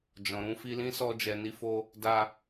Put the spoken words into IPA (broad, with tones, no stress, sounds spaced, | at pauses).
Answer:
d͡ʒ ɔ̃˨ ɾ ũ˧ f i˧ l ĩ˦ s ɔ˧ d͡ʒ ɛ˨ n i˧ f o˧ | d a˧